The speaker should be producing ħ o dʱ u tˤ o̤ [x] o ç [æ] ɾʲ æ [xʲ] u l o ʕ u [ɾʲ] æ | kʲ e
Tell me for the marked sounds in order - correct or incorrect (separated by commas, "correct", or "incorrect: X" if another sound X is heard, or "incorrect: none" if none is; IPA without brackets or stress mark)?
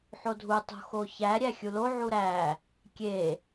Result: correct, correct, correct, incorrect: ɾ